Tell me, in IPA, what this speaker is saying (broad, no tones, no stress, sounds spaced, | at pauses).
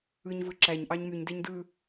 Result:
ɯ ɲ v ɯ ǁ æ ɲ ʔ ɑ ɲ m y ɲ d e ɲ d ɯ